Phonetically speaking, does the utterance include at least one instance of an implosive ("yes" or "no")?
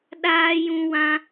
yes